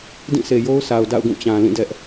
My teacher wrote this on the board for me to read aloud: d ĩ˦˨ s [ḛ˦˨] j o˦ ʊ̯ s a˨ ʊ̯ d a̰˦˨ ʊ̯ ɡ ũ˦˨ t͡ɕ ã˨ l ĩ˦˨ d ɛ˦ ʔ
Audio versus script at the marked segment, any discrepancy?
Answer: yes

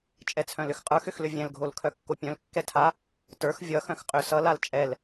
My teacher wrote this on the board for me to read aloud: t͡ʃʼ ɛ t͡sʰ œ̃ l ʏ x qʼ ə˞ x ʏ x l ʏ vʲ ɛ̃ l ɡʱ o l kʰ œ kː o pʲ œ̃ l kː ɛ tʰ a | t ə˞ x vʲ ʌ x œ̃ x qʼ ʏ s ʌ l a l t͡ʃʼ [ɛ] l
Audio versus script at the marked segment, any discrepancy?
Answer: no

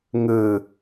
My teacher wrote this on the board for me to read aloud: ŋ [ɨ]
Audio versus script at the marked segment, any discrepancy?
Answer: no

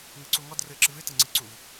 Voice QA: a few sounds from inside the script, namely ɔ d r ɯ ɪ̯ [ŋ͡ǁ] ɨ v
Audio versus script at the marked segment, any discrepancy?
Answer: yes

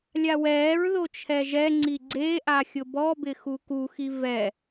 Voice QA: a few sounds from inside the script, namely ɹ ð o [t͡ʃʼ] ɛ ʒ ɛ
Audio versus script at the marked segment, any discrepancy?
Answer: yes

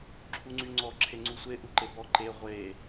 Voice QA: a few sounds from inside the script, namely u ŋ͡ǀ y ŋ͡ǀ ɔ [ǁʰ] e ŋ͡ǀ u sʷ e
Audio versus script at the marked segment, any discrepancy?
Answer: no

